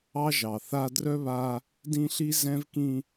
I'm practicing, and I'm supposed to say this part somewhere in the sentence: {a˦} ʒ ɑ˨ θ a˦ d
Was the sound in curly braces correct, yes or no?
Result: no